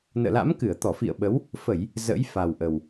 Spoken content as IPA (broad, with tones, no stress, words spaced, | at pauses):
nə̰ː˧˨la̰˧˥mkɨ˧˩ə̯t̪ɔ˧˩ fḭ˧˨ə̯ɓə˨˦w | fə˧˩˨j | zə̰˧˥jfa˨˩w ʔə˨˩w